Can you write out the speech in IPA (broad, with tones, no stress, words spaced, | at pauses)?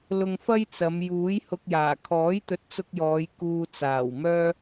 lʊ˧ŋfɐ˥jt͡sɐ˨˧m juː˨˥jhʊ˧k̚jaː˨˩ kʰɔː˨˥jt̪ɵ˨˥t̚t͡sʊ˧k̚jɔː˨˧j kuː˧t͡saː˨˩wmœː˥